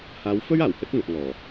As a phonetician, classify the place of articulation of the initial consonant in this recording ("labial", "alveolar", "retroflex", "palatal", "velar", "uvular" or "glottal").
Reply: glottal